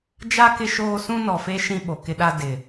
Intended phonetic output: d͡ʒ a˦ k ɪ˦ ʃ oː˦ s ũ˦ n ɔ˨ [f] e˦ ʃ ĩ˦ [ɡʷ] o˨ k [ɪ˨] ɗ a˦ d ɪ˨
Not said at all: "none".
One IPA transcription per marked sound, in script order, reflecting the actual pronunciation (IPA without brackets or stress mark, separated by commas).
f, ɓ, ɪ˦